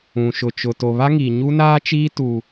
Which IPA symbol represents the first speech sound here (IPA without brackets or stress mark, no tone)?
ũ